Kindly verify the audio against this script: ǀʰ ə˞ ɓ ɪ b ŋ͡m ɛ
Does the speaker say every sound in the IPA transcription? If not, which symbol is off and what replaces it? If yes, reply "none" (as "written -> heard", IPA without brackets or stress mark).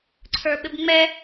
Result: none